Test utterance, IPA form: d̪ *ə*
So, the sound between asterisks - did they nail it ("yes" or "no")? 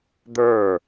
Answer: no